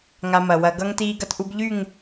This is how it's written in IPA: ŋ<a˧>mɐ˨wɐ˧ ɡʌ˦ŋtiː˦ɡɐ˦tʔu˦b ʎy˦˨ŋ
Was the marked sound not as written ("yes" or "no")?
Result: no